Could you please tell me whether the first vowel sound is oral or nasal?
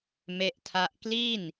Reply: oral